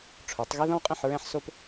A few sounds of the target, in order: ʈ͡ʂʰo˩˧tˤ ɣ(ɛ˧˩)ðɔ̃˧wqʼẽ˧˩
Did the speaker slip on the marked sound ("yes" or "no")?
yes